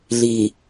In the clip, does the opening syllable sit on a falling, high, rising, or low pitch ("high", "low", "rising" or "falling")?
low